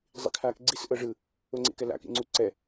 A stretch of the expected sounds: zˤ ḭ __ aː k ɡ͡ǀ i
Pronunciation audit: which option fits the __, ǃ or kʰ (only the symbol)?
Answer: kʰ